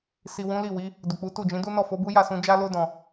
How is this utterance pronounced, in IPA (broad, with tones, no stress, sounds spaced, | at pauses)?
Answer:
s i˨ w ũ˨˦ l i˦˨ w i˨˦ | d u˨ k͡p u˨˦ t u˦˨ d͡ʒ ĩ˨˦ d u˦ n ɔ˦˨ f o˨˦ b u˦ j a˦˨ s ũ˧ d͡ʒ a˦ l o˦ d ɔ̃˦˨